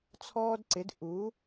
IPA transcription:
t͡sʰɔː˦dǀɪ˩˥d ʔu˩˥

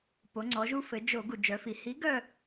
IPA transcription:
po˩˧ŋ͡ǀɔ˩˧ʒu˦ fɘ˩˧ d͡ʒo˧˩˧ ɡu˩d͡ʒœ˩˧fi˩ hi˨˥ɡœ˦˨

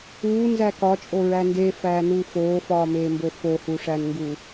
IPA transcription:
uːnzæ kɒt͡ʃʼoɹæ ndefæːnuː foːfɒːmeːmbo fohuʂænŋɡu

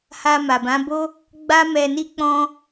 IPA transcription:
ha˧ma˨bã˨˦bo˦ | ɡ͡ba˦mɛ˧ni˦ k͡pɔ̃˦

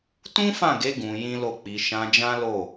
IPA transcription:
tũ˦fã˦˨ɡe˨˦ ɡũ˧jĩ˦lo˦˨ k͡pi˧ ʃã˧d͡ʒã˦ lo˦˨

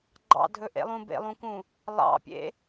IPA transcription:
ɡ͡ǃɑ̰dʱɵʔḛlˠũ bḛlˠũkũ | lˠɑ̰pʲḛ

